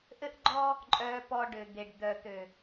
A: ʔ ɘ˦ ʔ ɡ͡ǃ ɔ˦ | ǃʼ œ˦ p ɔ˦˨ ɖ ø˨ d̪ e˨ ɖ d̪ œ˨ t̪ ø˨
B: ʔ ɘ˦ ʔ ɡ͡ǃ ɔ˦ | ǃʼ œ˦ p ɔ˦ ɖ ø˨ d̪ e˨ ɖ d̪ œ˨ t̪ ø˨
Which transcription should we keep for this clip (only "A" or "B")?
B